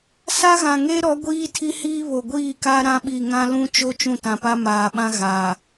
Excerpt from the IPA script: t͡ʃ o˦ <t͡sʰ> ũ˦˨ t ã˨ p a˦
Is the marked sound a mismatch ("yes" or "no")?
yes